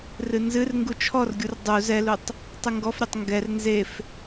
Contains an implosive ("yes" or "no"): no